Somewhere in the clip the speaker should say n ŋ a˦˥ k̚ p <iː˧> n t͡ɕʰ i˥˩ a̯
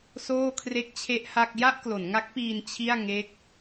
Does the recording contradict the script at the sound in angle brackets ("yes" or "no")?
no